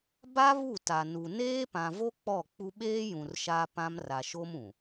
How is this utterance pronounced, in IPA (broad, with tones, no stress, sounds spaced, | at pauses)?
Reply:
b a˦ β u˦˨ t a˨ n u˨ n eː˦ p ã˨ v o˦ k͡p ɔ˦˨ k͡p u˦ ɓ eː˦ j ũ˨ r ʃ a˦ p ã˦ m r a˨ ʃ o˦ m ũ˨